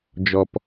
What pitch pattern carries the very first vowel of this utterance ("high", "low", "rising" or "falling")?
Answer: low